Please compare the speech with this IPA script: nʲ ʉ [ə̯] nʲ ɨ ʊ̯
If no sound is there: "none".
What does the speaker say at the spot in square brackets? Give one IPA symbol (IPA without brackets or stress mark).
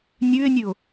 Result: ɪ̯